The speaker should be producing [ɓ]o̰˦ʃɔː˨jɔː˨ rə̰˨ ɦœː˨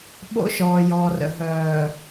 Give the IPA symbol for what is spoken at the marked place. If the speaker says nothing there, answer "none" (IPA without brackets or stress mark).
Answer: ɓ